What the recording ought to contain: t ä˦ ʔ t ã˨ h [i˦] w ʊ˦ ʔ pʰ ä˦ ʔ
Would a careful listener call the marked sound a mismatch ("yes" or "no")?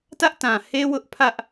yes